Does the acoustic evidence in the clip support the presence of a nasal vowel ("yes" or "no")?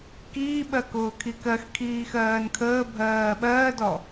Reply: no